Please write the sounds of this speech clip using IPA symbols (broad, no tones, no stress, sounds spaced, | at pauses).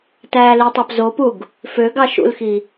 t æː l i tˤ ɑ p z o p u ɡ | f ø ɡ ɑ ʃ ṵ l x i